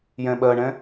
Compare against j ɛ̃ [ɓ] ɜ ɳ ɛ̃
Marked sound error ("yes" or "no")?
no